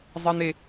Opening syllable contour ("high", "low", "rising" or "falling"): high